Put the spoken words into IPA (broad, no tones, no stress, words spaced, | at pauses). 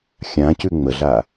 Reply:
xʲãcʉ ŋ͡məɮa